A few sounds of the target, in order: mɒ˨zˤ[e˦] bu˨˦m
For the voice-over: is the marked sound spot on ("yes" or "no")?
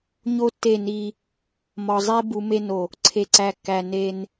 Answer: yes